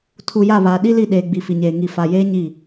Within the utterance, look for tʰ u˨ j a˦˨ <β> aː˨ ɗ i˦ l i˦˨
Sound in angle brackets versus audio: correct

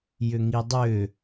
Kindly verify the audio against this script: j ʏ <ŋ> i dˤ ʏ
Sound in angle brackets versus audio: correct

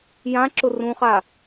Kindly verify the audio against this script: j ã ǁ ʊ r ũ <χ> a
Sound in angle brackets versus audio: correct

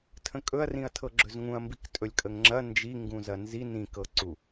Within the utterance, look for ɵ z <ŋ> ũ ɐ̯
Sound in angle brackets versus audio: correct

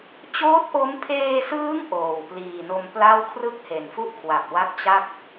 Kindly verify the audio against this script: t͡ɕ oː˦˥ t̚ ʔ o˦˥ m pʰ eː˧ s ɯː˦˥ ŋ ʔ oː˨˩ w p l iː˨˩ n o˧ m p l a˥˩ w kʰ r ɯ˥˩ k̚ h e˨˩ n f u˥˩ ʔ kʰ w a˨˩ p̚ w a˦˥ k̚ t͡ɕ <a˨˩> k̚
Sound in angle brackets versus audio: incorrect: a˥˩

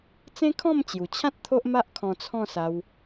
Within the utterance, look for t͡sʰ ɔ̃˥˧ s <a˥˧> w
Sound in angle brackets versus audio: incorrect: a˧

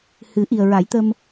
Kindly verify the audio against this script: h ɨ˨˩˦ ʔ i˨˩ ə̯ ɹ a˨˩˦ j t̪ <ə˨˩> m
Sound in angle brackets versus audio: incorrect: ə˧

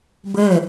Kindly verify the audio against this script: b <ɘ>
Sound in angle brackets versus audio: correct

